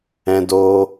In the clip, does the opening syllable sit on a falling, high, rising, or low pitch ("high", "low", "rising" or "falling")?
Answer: high